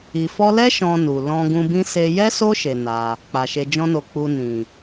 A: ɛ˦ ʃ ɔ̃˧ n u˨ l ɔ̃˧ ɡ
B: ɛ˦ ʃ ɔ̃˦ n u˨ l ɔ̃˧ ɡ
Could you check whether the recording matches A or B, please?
A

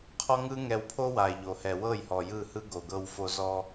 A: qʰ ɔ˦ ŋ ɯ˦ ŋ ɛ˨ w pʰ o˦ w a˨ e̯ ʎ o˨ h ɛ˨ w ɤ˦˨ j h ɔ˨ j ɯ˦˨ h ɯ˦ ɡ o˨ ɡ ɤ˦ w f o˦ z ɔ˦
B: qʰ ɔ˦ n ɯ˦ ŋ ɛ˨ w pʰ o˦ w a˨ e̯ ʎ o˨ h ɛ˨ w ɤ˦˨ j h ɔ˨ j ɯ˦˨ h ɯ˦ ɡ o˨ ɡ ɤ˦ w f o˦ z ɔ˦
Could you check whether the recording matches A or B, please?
A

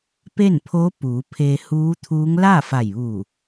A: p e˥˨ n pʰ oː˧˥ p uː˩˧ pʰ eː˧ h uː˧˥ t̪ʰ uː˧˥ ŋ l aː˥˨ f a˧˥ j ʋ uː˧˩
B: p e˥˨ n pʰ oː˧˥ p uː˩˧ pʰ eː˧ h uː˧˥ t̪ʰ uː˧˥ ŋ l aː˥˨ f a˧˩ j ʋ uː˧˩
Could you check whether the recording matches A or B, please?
B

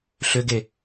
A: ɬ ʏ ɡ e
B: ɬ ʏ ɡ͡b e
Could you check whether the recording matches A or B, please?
A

